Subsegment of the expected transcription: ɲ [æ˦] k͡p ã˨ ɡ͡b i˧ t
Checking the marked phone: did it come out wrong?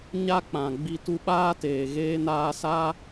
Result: yes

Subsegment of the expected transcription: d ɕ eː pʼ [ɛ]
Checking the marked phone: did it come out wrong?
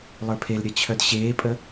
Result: yes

